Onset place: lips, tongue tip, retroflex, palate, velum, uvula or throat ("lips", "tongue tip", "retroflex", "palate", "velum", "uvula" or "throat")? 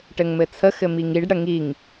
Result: retroflex